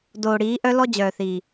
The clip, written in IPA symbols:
d oː˨ ɽ iː˨˦ ʔ œ˦ l ɔ˦ d͡ʑ œː˨ θ iː˨

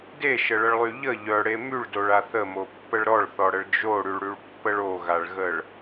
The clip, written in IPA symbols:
d e ʃ ə ɭ ə ɭ lˠ y ʎ ə ʎ œ ɽ e m y ɭ d o ɭ a θ ə m o pː ə ɭ ɾ ɔ ɭ θ ɔ ɽ ə ɭ d͡ʒ o ɽ y ɭ ɽ y ɭ pː ə ɭ o ɣ a ɭ ɣ ə ɭ

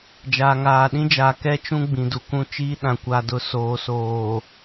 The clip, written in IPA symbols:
d͡ʒ aː˨ ŋ aː˨ ɗ ĩ˦ d͡ʒ a˨ k ɛ˦ t͡ʃ ũ˦ ɡ͡b ĩ˨ d u˨ k ũ˦ t͡ʃ iː˦ ɗ ã˨ kʷ a˨ d ʊ˨ s oː˨ s oː˨

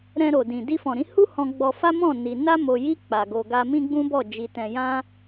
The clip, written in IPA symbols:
ɾ ɛ̃˧ ɾ o˨ d ĩ˨ d i˧ f ɔ̃˨ ɾ ĩ˨˦ h u˦ h ɔ̃˧ ɡ͡b ɔ˧ f a˦ m ɔ̃˦˨ n i˧ n a˦ m o˧ j i˦ k͡p a˧ ɡ o˧ ɡ a˦ m ĩ˦ ɡ͡b ũ˦ b ɔ˦˨ d͡ʒ i˧ t ɛ̃˧ j ã˦

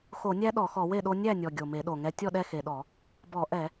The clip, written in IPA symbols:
x o˧˩˧ nʲ æ˦ ɗ ɔ˧˩˧ x ɔ˧˩˧ w e˥˩ ɗ o˦ nʲ æ˥˩ nʲ ɔ˨˩ ɡʲ o˨˩ m e˧˩˧ ɗ o˨˩ ŋ ɛ˦ tʲ ɔ˥˩ ɗ ɛ˥˩ x e˨˩ ɗ ɔ˧˩˧ | b ɔ˧˩˧ ʔ ɛ˧˩˧

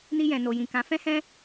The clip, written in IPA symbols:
n i˧ j ɛ̃˨ n o˨ j ĩ˨ k ã˨˦ f ɛ̃˦ h ɛ̃˦

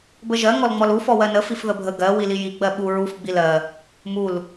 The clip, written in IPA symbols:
b ə ʒ ɜ ŋ ɔ l ŋ͡m ɔ l u f ɔ w ɜ n ə f i f ð ə bʱ ə ɡ ɜ w i l i j i ɡ͡b ɜ ɓ u ɹ u f ɡ͡b i l ɜ | m u l

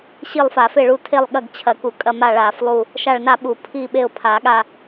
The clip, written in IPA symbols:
ɕ i˦˨ lˠ f a˨˩˦ f e˦˨ ɭ u˦˨ tʰ e˦˨ lˠ ɠ ɐ˦˨ ɡ t͡ɕʰ ɐ˨˩˦ k u˨˩˦ kʼ ɐ˦˨ m a˦˨ ɭ a˨˩˦ f lˠ u˦˨ | ʃ a˦˨ ɭ n a˦˨ ɓ u˨˩˦ pʰ i˦˨ ɓ e˦˨ ʊ̯ pʰ a˨˩˦ ɠ a˦˨

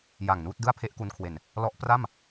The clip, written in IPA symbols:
j a˨˩ ŋ n uː˥˩ t̚ d ɯ˥˩ a̯ pʰ e˥˩ ʔ k u˧ n kʰ w e˨˩ n | l ɔ˦˥ ʔ p r a˥˩ m

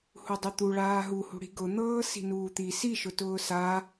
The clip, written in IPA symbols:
h u dˤ y t̪ u ɭ aː ɦ u h ṳ ɽ i̤ ɡ ʊ n̪ ɤː s i̤ n uː t̪ i s i ʃ ʊ t ʊː s a

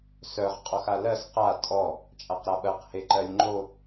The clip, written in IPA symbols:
s œ ʁ qʼ ɔ x a l ɜ s q a tʼ ɔ | t͡ʃʼ a q ɾ a ɓ ɜ q h e ǃ ɜ lʲ ŋ͡ǃ o

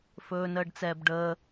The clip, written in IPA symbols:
f ɵː n əː ɖ t͡s ɛː b ɖ əː

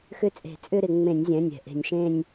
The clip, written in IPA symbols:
x ʏ˥˧ t͡sʼ e̤˧˩˧ t͡sʼ ʏ˥˧ ɾ ɪ˧˩˧ ŋ͡m ẽ˧˩˧ nʲ zʲ ɛ̃˩˧˩ nʲ ɛ̤˩ ʔ e̤˧˩˧ nʲ ʃ ẽ˥˧ nʲ

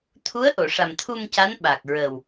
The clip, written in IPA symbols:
t̪ʰ u˧˥ ə̯ ʔ o˨˩˨ ʂ a˨˩ m t̪ʰ u˧ m c a˧˥ n ɓ a˨˩ k̚ ɹ ə˨˩ w

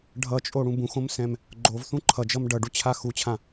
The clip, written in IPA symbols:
ɖʱ ʌ t͡ʃʼ o ɽ ũ b ũ x õ m s ɛ̃ m | ɡ͡ǃ o v θ ũ ǃʰ ʌ d͡ʒ ʌ m ɖ ʌ ɖ u t͡ɕʰ a x u t͡ɕʰ ã

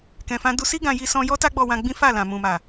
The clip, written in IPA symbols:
k ɛ̃˨ f ã˧ d u˧ s i˦ ɡ ã˧ j i˦ s ɔ̃˦ j ɔ˦ t a˦ ɡ͡b ɔ˧ w ã˧ ɡ͡b ĩ˦ f a˦˨ l ã˨ m ũ˨ m a˨

